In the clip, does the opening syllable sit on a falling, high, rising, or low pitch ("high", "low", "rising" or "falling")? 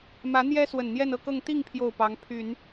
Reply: rising